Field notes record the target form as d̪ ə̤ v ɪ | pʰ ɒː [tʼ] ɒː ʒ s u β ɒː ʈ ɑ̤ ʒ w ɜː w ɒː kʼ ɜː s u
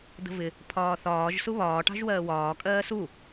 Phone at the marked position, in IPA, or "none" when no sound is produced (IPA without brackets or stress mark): θ